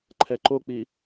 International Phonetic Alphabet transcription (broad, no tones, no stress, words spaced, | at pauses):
ǃʰɛǃok͡pi